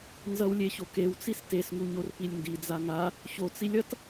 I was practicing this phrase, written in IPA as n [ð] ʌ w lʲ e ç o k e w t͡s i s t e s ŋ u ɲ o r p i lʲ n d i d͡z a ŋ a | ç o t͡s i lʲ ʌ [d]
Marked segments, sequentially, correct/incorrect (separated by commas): incorrect, incorrect